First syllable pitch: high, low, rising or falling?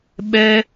high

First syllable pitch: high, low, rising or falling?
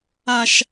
low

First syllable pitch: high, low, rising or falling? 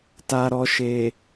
low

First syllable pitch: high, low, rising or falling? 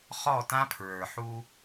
falling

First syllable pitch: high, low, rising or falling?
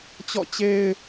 falling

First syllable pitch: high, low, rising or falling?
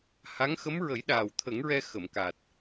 rising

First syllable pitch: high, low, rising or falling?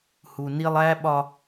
low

